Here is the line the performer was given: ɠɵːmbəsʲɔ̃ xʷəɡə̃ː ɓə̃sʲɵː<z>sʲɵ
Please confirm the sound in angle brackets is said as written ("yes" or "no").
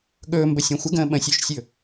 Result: no